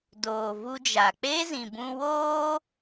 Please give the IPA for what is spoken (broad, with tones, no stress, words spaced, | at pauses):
doː˨vu˧d͡ʒa˨ k͡pe˦zĩ˨bũ˧woː˦